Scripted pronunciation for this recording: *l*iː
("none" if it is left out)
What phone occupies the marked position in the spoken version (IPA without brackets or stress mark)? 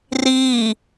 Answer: r